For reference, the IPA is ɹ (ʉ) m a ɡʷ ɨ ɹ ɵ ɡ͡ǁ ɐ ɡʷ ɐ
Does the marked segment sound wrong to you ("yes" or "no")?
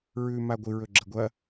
no